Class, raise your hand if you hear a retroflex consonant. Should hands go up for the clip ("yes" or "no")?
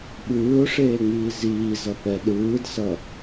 yes